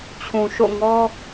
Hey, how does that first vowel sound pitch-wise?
low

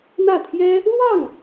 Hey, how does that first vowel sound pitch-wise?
falling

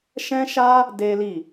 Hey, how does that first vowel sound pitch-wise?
high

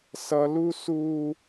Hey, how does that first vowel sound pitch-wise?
high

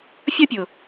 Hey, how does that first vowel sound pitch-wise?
high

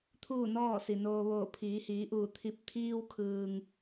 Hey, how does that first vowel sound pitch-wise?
falling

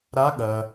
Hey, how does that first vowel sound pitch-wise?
rising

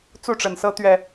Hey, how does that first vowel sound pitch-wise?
falling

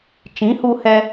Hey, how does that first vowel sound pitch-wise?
rising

